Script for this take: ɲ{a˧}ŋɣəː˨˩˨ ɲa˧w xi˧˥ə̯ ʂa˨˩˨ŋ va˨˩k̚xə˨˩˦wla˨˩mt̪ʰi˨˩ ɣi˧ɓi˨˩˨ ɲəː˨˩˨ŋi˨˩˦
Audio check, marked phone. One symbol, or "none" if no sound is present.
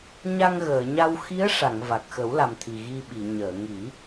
a˧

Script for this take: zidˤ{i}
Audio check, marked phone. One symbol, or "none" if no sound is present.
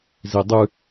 ɨ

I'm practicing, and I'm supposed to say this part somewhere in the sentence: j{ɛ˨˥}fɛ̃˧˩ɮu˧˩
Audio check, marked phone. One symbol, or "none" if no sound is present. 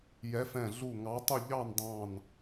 ɛ˨˥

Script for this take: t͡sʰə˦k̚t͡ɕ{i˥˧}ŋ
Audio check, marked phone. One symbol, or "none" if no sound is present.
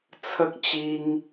i˧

